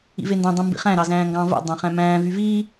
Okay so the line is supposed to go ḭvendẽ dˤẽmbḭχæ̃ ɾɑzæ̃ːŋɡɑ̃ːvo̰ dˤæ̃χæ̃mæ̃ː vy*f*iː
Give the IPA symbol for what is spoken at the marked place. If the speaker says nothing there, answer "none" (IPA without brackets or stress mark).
v